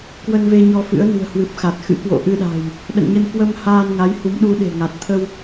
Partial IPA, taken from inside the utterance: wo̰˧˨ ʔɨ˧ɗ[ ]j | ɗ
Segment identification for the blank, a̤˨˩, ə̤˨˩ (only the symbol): a̤˨˩